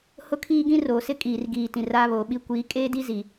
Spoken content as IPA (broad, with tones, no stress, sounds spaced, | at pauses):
h ʊ˦ kʰ iː˦ ɡ ĩ˦ r oː˨ s ɪ˦ kʼ iː˨ r ɡ iː˨ t ĩ˨ r aː˦ β oː˨ ɓ i˦ kʷ iː˨˦ kʼ eː˦ d i˦ z i˨